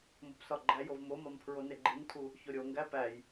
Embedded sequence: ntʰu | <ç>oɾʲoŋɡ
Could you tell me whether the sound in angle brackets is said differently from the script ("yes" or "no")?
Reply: no